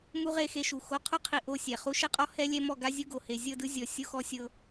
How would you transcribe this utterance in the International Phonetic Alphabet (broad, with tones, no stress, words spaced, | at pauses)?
mu˦ʁe˦˨xe˦ʃu˨ xo˨qʰu˦qʰi˨ ʔo˦˨sʲɛ˨χu˦ ʃɛ˦qʼɔ˦ hɛ˦lʲɛ˦mɔ˦˨ ɡa˦zʲu˦ ɡo˨he˨ zʲɤ˦˨dɯ˦zʲɔ˨ sʲo˦xɔ˦sʲɤ˦